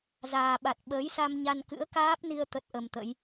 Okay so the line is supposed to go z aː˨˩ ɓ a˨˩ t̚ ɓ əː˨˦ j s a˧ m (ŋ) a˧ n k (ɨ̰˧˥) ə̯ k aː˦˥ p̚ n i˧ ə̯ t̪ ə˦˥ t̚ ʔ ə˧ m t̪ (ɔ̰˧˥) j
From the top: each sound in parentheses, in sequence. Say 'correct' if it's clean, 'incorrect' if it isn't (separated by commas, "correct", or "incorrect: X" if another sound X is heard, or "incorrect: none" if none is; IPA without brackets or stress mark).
incorrect: ɲ, correct, incorrect: ə̰˧˥